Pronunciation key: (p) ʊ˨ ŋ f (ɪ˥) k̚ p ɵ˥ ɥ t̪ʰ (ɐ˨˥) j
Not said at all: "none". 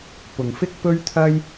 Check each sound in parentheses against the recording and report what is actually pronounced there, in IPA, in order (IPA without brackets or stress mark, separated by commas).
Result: p, ɪ˥, ɐ˥